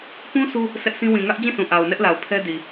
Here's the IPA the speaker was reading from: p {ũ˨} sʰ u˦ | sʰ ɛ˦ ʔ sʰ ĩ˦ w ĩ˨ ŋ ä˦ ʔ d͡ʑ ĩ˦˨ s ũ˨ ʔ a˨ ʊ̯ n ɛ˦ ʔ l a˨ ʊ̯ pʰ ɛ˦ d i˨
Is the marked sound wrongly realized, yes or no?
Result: yes